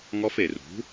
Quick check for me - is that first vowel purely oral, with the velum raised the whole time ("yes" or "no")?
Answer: yes